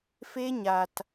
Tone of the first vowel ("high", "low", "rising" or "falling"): high